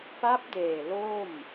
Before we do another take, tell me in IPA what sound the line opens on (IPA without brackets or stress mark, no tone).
p